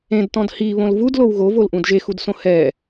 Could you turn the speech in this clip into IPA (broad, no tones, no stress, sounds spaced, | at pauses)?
ẽ d t ɔ̃ d h i β õ l v u d l o w ɣ o v o l ʔ ũ d ʒ e x u d s õ h ɛ